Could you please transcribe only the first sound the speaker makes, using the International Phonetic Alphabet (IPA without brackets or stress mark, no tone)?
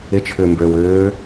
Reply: ɪ